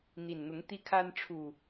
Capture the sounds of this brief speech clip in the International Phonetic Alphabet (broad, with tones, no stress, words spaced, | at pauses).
n̪i˨˩nn̪ʊ˨˦ŋ t̪i˦kʰa˦n ʈ͡ʂʰu˨˩